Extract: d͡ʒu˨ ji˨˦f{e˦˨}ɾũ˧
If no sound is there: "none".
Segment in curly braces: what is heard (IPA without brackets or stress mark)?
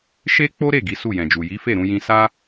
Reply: e˦˨